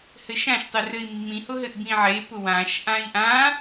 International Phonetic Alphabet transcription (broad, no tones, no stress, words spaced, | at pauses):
hɘʃãʃ tˤɘrɘi̯mːĩ hʊɦɘʔbĩʕe pʊwãʃ ʔãi̯ʔã